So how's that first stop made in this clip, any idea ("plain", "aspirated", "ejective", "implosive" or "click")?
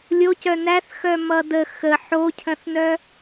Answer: plain